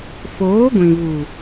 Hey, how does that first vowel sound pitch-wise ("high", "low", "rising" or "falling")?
rising